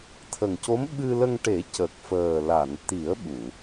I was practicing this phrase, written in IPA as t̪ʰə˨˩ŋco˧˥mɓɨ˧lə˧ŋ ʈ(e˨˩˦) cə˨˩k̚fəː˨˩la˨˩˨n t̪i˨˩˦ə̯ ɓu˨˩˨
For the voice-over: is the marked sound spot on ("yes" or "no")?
yes